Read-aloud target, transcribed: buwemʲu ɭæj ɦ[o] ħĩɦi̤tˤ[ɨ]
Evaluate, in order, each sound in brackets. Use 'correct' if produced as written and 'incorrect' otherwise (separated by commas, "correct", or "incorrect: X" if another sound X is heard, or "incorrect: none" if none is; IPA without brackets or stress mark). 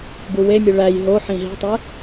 correct, incorrect: e